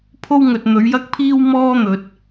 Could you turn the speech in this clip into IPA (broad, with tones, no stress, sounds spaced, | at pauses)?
pʰ o˥ w ŋ ɵ˨ t̚ n̪ ɵ˨˧ ɥ j ɐ˥ k̚ pʰ iː˥ w m ɔː˥ n̪ ɵ˨ t̚